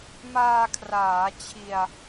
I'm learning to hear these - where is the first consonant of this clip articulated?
lips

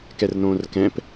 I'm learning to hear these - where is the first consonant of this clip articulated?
velum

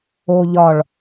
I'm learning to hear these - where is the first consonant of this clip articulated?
palate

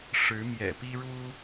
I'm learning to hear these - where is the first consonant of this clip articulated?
retroflex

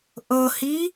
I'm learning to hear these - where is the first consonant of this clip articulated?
throat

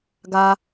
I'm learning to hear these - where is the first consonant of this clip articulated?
velum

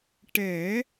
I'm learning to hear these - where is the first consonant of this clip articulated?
retroflex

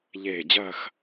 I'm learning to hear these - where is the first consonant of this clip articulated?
palate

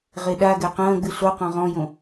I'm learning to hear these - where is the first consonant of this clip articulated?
uvula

